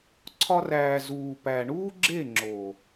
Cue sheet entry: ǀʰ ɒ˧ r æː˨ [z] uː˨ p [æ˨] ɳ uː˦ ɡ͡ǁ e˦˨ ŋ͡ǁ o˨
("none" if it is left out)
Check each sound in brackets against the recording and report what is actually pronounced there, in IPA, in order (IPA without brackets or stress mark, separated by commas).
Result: z, æ˨